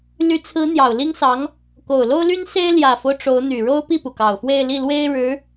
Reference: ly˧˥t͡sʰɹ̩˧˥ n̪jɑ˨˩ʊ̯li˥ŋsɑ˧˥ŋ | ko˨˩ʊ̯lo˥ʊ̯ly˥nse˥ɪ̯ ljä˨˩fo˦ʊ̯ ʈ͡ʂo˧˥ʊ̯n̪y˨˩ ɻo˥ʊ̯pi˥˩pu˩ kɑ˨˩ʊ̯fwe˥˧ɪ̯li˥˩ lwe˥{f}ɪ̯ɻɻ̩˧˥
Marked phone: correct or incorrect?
incorrect: none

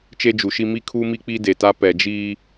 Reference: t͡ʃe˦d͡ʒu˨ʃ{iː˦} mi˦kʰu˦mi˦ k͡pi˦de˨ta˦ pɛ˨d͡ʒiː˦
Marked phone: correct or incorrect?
incorrect: i˦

